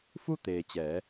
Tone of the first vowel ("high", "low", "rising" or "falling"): falling